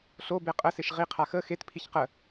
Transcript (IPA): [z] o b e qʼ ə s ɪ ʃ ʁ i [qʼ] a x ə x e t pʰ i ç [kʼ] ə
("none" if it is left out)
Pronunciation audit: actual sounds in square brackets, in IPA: ɬ, qʰ, q

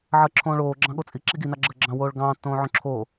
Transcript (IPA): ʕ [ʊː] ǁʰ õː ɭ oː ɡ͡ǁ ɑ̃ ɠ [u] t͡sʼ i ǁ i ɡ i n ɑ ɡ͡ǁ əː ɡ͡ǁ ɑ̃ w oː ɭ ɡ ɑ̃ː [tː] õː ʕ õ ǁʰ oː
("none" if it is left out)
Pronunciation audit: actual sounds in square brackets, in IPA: əː, o, tː

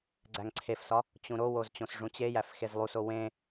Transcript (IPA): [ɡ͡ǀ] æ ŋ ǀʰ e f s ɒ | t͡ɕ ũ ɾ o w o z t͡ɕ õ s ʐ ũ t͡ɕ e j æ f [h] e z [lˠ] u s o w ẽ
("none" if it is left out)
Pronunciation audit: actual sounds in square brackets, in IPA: ɡ͡ǀ, x, lˠ

